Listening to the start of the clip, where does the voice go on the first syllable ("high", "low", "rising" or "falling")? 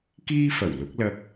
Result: high